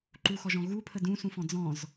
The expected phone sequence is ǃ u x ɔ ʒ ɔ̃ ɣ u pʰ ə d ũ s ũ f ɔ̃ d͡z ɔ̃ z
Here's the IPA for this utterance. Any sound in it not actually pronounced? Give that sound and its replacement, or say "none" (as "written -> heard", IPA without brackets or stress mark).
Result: none